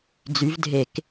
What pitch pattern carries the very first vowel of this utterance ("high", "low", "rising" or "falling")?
rising